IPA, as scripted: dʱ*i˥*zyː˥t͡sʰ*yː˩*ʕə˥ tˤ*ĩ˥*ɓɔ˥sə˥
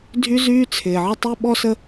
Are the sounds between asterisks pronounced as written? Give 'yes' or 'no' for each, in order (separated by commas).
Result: no, no, no